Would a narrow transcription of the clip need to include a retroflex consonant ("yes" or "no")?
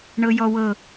yes